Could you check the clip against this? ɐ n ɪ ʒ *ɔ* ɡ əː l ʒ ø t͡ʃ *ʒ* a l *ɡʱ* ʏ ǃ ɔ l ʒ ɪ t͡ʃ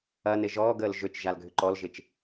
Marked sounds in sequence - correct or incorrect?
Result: incorrect: ɔː, correct, correct

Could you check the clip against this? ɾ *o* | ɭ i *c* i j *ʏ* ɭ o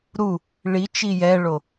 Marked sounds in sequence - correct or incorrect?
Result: incorrect: u, incorrect: t͡ʃ, incorrect: ɛ

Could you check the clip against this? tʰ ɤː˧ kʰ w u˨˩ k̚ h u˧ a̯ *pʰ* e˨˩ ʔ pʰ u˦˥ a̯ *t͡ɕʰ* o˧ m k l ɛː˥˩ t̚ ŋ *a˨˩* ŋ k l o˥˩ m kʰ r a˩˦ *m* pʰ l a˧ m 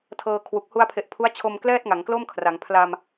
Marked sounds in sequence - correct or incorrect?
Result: correct, correct, incorrect: a˩˦, incorrect: ŋ

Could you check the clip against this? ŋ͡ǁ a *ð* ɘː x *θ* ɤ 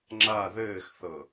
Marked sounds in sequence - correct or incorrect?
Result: correct, correct

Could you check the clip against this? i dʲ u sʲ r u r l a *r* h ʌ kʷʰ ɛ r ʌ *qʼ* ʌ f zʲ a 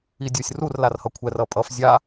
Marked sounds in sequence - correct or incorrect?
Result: correct, incorrect: pʼ

